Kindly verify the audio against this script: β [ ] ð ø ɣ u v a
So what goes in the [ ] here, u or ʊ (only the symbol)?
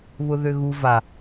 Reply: ʊ